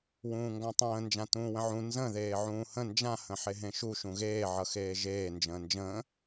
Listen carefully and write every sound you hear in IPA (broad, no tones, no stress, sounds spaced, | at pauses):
w ũː ŋ ɡ ã tˤ ə̃ː n d͡ʒ ã t ũː w ə̃ ʕ ũ n z ə̃ ð eː ʕ ũː h ə̃ n d͡ʒ ã h ə̃ ħ e ɦ ẽ ʃ u ʃ ũ ɣ eː ʕ ʌ x eː ʒ eː n d͡ʒ ə̃ː n d͡ʒ ə̃ː